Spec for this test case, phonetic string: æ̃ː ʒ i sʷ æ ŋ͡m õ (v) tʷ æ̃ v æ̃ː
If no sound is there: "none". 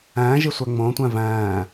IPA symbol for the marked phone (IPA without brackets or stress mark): none